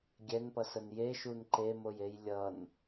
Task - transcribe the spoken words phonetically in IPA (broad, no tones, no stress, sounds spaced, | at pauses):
ɡʲ ɛ n p ʌ s ə n j e ʃ u n ǃ e m o j e j lʲ ʌ n